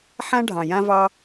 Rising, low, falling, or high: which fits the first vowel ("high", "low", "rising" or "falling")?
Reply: high